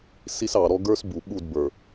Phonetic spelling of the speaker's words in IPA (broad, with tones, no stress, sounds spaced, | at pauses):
s i˦ s ɑ˨ ɾ ɔ˦ ɡ ə˞˦ s b u˨ ɓ u˦˨ d b ə˞˨